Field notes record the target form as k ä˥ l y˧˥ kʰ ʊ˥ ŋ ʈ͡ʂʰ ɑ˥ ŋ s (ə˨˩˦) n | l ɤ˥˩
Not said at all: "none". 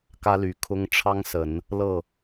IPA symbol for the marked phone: ə˨˩˦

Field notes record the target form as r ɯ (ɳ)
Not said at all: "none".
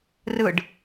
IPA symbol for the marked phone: ɖ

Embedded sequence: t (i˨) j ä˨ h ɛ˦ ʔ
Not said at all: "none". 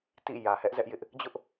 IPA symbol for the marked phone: ḭ˦˨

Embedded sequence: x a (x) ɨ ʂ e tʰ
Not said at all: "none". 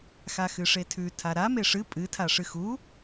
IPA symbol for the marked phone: x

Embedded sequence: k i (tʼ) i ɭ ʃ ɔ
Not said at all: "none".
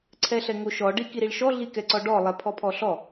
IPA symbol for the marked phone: ɾ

